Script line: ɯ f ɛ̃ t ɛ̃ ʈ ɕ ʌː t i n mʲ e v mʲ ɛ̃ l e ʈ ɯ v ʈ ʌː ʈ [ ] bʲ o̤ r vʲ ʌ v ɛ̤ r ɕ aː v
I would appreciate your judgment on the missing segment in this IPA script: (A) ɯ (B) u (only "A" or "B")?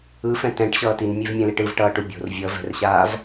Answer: B